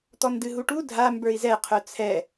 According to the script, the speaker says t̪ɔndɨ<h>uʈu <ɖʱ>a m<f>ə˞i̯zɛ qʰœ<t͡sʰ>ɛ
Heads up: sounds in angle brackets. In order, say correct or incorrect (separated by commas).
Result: incorrect, incorrect, incorrect, correct